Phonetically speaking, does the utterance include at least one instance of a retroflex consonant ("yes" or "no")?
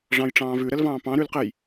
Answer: yes